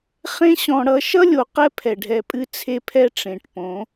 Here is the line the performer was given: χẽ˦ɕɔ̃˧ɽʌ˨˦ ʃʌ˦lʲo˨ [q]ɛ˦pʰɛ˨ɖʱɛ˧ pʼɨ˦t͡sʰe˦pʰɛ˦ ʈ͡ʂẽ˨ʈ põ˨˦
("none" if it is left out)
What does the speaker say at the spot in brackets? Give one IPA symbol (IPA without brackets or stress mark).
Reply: q